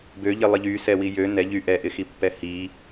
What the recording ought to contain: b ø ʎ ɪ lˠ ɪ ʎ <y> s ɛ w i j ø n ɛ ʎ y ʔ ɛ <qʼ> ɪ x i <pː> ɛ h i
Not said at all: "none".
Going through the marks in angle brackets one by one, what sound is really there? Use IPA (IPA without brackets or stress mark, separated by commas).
y, ʔ, pː